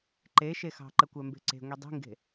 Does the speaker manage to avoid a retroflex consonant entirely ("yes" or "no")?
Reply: yes